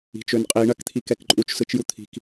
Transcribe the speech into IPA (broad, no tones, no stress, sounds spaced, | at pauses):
i̤ t͡ʃ ø n qʼ i ɳ ɐ k t̪ʰ i k ɛ k ǃʼ u t͡ʃ s ɯ t͡ʃ j u t̪ʰ i̤ k